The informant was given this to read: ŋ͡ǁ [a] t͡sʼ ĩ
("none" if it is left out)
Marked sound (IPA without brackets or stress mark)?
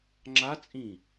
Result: a